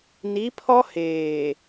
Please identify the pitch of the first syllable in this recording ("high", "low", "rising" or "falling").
rising